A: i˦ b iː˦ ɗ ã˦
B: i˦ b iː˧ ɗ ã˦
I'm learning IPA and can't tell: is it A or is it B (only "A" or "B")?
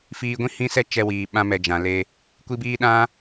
A